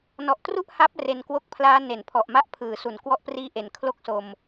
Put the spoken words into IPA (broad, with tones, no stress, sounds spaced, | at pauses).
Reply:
n ɔ˨˩ ʔ t r u˥˩ ʔ h a˦˥ p̚ r e˧ n k w o˦˥ k̚ pʰ l aː˦˥ n e˩˦ n pʰ ɔ˨˩ ʔ m a˦˥ ʔ pʰ ɯː˩˦ s u˩˦ n k w ɔ˦˥ ʔ p r iː˦˥ ʔ e˩˦ n kʰ l o˥˩ k̚ s o˧ m